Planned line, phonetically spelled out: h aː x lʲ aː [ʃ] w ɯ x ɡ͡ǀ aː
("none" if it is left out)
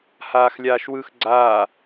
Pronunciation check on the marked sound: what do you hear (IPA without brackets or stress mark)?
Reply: ʃ